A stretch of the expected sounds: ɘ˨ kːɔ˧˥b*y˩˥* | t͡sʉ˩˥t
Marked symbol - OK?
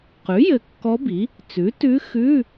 no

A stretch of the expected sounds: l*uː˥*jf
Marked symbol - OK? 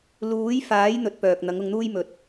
no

